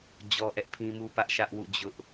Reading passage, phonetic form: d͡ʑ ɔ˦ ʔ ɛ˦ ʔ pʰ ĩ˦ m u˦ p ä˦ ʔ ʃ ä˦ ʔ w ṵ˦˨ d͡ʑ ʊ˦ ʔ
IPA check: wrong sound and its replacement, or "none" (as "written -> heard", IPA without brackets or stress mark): none